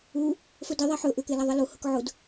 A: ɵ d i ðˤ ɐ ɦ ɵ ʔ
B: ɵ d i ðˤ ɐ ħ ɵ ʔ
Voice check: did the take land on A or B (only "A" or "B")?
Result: B